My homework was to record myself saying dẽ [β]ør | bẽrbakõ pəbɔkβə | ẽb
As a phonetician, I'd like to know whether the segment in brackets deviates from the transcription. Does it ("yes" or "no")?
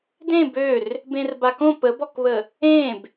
yes